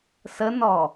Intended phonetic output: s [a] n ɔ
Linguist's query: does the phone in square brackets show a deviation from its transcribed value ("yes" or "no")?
yes